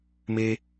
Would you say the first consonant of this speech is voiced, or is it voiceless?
voiced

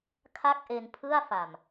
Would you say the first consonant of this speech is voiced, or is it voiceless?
voiceless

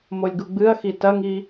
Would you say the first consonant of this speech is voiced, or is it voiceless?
voiced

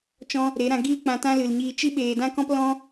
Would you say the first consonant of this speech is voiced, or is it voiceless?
voiceless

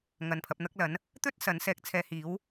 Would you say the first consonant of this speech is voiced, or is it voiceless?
voiced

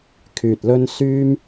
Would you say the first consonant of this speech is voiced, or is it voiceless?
voiceless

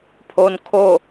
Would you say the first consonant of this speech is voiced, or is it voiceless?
voiceless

